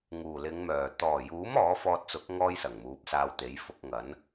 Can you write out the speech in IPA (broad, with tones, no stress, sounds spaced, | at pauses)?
ŋ uː˨˩ l ɪ˨˧ ŋ m œː˨˩ t̪ ɔː˨˩ j uː˨˥ m ɔː˨˥ f ɔː˧ t̚ t͡s ʊ˨˥ k̚ ŋ ɔː˥ j s ɐ˨˩ ŋ m uː˨˥ p̚ s aː˧ w t̪ e˨˥ j f ʊ˧ k̚ ŋ ɐ˨˥ n